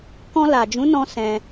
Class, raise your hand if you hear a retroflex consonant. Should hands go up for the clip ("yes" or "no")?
no